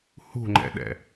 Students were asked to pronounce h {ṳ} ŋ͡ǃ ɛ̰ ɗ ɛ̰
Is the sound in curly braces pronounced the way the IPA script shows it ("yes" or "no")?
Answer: yes